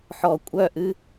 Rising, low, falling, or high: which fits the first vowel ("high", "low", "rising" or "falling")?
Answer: low